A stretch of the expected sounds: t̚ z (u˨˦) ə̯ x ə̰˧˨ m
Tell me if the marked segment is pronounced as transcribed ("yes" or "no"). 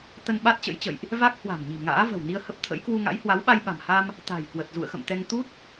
no